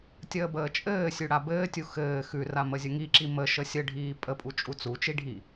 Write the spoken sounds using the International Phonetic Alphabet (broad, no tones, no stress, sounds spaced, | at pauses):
tʲ əː b əː t͡ʃʼ ɘː sʲ ʉ ɽ a b ɘː tʲ u x ɘː x ʉ r a m ə zʲ ə ŋ i ǁ i m ə ʃ ə sʲ ə ɖʱ iː pʼ ə pʼ u t͡ʃʼ u t͡s u t͡ʃ i ɖʱ i